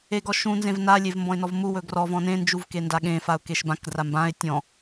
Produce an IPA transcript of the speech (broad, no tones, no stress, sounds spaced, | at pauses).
e ɡ ɔ ʃ ũ n z ẽ v n a lʲ e v m b ɔ̃ ɪ̯ n ɔ v m u w ɵ ɡ r ɔ v ɔ̃ n ẽ n d͡ʒ u v k e n d a ɠ ẽ f a ʊ̯ k e ʃ b ã k d r a m b ã ɪ̯ tʲ ɔ̃